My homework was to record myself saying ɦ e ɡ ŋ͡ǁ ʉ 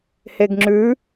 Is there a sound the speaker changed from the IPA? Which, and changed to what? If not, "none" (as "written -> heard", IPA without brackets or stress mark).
ɦ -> h